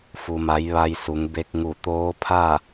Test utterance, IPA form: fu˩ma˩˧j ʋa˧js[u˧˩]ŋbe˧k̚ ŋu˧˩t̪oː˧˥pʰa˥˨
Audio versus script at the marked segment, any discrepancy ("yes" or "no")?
yes